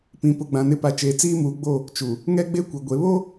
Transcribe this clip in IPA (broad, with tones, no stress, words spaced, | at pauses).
pĩ˨ pʊ˨ɡ͡bã˨nɪ˨˦pa˨ t͡ʃeː˨t͡siː˦muː˨ɡ͡bo˦˨ | t͡ʃu˨ | ŋɛ˦ɡ͡be˦kʷɛ˨ ɡʷe˨βo˦